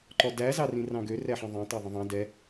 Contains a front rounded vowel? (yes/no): yes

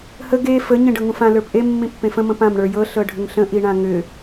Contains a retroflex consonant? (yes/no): yes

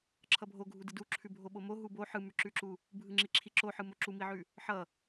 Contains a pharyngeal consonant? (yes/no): yes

